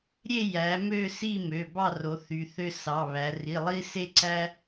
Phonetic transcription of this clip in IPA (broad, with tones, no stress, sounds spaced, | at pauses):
ɾʲ e˥˨ j æ˩˧ m ø˥˨ s i˥˨ m ø˩˧˩ b ɑ˥˨ r o˩˧ θ y˩˧ θ ø˦ s ɑ˩˧˩ β æ˩˧ r i˩˧˩ lˠ i˦ s e˦ ǀ æ˦